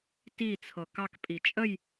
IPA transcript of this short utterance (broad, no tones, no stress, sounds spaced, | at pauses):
t i t͡sʰ ɤ k ɑ k pʼ i t͡ʃʼ ə j